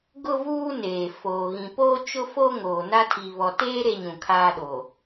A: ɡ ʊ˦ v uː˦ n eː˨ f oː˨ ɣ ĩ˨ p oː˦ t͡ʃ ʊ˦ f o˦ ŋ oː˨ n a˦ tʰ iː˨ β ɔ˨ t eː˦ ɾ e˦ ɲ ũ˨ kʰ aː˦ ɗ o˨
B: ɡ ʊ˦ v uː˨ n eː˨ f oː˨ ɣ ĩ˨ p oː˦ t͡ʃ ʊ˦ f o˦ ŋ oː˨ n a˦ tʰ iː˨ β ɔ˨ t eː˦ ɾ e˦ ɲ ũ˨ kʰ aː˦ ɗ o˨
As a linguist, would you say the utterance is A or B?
A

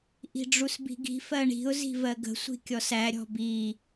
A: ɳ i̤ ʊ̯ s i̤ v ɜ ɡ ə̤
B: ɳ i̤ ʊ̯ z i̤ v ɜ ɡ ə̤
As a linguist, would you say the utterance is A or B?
B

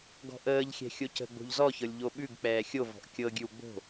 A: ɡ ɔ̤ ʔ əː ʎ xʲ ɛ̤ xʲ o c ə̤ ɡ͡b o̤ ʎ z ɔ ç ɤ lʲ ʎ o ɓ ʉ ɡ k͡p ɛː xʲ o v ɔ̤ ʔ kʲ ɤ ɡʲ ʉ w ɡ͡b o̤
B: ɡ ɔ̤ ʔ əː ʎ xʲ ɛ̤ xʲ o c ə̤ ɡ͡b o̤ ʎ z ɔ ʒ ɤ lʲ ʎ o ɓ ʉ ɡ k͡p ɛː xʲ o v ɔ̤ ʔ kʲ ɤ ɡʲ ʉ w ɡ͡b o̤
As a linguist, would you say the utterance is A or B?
A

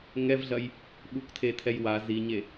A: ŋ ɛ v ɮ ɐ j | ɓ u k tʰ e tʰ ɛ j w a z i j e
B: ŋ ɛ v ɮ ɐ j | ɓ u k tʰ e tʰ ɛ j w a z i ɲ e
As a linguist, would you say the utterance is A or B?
B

